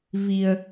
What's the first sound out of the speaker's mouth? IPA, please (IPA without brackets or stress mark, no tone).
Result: v